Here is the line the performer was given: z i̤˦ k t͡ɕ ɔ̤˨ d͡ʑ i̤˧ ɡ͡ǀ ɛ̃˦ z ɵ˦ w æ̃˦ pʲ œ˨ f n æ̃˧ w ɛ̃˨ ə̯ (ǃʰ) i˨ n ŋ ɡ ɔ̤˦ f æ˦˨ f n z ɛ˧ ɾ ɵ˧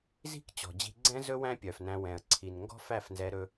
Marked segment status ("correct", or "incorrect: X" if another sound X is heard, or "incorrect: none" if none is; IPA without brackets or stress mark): incorrect: ǀʰ